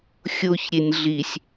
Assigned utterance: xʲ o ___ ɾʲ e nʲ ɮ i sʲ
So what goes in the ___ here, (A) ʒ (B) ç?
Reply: B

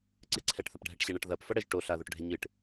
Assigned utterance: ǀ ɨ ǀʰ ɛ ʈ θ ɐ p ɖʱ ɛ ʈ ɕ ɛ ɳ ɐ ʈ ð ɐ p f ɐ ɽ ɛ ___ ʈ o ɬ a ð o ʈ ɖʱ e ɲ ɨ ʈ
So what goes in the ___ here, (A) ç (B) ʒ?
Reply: B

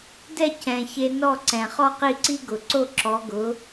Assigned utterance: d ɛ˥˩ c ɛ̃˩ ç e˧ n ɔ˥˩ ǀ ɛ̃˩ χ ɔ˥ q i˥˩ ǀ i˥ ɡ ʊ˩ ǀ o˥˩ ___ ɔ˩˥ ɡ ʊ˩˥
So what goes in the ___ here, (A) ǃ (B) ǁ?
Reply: B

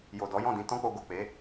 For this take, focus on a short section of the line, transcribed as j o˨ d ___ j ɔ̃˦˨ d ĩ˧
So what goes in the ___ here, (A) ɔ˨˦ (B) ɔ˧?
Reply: A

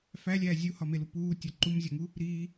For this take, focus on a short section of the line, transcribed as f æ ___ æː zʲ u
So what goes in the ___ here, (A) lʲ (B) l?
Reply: A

